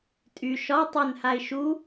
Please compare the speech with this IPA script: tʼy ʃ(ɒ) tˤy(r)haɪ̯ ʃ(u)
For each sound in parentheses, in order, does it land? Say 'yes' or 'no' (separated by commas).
yes, no, yes